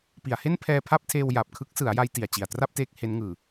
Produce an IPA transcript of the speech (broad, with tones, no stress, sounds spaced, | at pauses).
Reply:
p i˩˦ a̯ h e˥˩ n pʰ ɛː˧ pʰ a˥˩ p̚ tʰ eː˧ w j a˨˩ p̚ kʰ ɯ˦˥ k̚ s ɯ˩˦ a̯ j a˧ j t i˨˩ a̯ t͡ɕ i˨˩ a̯ t r a˥˩ p̚ t eː˦˥ k̚ h e˦˥ n ŋ ɯː˨˩